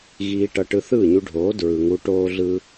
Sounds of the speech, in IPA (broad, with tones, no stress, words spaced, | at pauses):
ɣiː˧ʈʌ˧ ʈɯ˧θɯː˦˨ɲu˧ɖʱoː˨˦ dɹɯ˨ ŋu˧ ʈoː˦ɮɯ˦